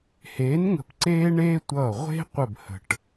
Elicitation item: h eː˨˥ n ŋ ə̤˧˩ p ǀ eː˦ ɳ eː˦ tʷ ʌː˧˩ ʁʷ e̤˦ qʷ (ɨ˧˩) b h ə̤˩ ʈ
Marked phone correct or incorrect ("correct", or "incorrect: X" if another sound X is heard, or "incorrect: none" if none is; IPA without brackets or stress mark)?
incorrect: ə˧˩